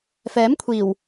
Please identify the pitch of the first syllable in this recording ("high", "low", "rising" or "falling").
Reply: rising